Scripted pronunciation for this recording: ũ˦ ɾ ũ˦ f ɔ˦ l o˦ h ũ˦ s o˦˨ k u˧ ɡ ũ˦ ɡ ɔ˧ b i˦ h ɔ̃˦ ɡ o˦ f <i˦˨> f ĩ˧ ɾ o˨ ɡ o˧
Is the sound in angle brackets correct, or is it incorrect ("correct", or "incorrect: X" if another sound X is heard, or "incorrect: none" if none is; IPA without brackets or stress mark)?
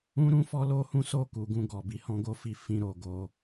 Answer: correct